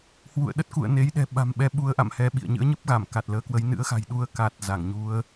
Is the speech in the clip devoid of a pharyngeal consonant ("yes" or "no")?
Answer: yes